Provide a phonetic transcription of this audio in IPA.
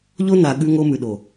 ʎ o˦ n a˨ ɠ ʉ˦ ŋ o˦ m ʉ˨ ɗ o˨

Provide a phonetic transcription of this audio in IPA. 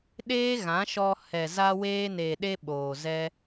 ɗ eː˦ ɣ ã˨˦ ʃ ɔ˧ h ɛ˨ z a˧ w eː˧ n e˨ ɗ e˧ ɓ oː˨ z ɛ˦

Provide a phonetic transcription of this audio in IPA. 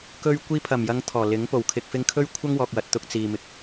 k ɵ˧ ɥ kʷ iː˧ pʰ ɐ˨˩ m j ɐ˨˧ ŋ t̪ʰ ɔː˨˩ l ɪ˨˥ ŋ p o˨˩ w kʰ ɪ˨ k̚ f ɪ˧ ŋ kʰ ɵ˥ ɥ kʷʰ ɐ˥ ŋ w ɔː˨ k̚ w ɐ˨ t̚ t̪ ʊ˧ k̚ t͡s iː˨ m ɪ˨ k̚

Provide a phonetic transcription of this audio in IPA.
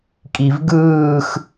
kʼ i v ɡ ɯː x

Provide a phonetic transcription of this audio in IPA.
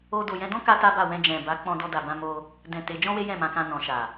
o˧ d o˨ j ɛ̃˧ d ɔ̃˦ k a˧ t a˦ b a˦˨ w ɛ̃˧ d͡ʒ ɛ̃˨ b a˨˦ k͡p ɔ̃˧ d ɔ˧ d a˨ b ã˧ m o˧ | d ɛ̃˨ t e˨˦ d͡ʒ ɔ̃˦ w e˦ j ɛ̃˦˨ m ã˧ k ã˧ n ɔ̃˨ ʃ a˨

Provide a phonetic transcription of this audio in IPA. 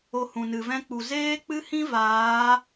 o˧ h ũ˨ n ɨ˨ v ɛ̃˧ k͡p u˨ z eː˦ k͡p ɨ˦ h ĩ˦ v aː˨˦

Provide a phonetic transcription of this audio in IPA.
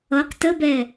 ʌ q t ə b ɛ

